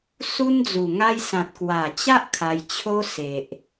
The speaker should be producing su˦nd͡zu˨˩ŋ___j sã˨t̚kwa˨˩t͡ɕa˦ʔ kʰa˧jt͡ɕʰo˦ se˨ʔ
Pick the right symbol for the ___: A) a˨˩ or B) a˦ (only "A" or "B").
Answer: B